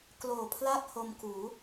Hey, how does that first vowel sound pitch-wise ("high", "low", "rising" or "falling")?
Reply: low